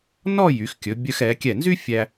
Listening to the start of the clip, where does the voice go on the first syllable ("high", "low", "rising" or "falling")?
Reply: falling